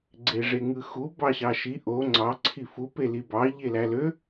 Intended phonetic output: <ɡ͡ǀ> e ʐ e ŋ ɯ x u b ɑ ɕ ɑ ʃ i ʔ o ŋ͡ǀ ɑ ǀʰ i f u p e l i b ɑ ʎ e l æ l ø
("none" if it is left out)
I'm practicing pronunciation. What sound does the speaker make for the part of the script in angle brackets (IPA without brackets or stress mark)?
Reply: ɡ͡ǀ